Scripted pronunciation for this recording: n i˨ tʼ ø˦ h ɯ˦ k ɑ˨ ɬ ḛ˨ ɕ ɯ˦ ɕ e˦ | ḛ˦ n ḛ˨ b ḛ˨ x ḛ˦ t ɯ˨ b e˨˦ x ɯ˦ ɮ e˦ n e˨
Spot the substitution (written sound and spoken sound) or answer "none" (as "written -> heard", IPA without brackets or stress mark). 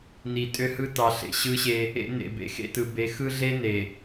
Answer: k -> t